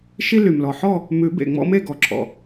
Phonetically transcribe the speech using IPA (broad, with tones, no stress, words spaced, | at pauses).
ʃi˦ly˩mlɔ˩ħɔ˥˨ | mʉ˨˩˦bḛ˩ŋ͡mɔ̰˦ me˥˨ɡɔ˩ǁʰɔ̰˩